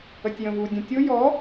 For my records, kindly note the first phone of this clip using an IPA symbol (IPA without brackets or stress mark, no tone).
ə